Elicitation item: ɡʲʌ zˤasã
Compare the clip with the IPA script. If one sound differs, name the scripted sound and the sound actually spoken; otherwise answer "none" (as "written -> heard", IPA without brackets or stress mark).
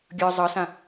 a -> ʌ